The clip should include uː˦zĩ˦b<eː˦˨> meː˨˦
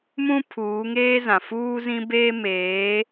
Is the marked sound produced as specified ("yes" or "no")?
no